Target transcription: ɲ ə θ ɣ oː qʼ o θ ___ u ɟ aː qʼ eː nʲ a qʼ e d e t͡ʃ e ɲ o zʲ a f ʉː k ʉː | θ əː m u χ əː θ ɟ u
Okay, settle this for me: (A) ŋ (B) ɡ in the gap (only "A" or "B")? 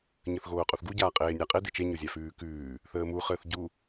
B